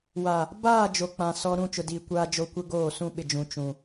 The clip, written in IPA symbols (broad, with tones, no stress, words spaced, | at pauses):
wa˨ | baː˦˨ d͡ʒo˨k͡pã˨ sɔ˨ ɾũ˦˨t͡ʃʊ˨diː˨ kʷaː˦d͡ʒo˦ kʷɪ˦ ɡoː˦˨ sũ˦ ɓɪ˨d͡ʒũ˨ t͡ʃũ˨